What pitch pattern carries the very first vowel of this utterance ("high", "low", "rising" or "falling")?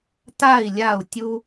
falling